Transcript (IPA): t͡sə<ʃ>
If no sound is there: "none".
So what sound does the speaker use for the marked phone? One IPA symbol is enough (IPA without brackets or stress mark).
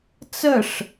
ʂ